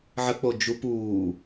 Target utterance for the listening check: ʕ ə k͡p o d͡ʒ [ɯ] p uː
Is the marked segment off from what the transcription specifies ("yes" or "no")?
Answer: yes